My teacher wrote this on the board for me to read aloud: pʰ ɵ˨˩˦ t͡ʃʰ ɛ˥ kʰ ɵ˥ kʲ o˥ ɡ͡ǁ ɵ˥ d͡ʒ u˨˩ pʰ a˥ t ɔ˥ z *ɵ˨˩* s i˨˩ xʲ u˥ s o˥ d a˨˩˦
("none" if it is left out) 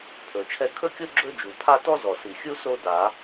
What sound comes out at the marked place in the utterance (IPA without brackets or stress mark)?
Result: ɔ˨˩